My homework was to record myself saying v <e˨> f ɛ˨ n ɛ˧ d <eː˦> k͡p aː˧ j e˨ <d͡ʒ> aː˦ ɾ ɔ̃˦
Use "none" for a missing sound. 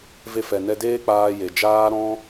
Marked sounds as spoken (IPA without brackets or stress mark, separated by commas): e˧, eː˦, d͡ʒ